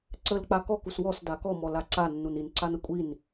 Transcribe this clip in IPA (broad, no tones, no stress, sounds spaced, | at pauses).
ǀ ə l k͡p a k ɔ k u s w ɔ s d a k ɔ m ɔ l a ǀ a nː u n i n ǀ a n ə kʷʼ i n